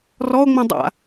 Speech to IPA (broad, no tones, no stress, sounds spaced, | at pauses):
r ɔ o̯ ŋ͡m ĩ dˤ a̰